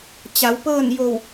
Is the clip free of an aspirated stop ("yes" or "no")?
yes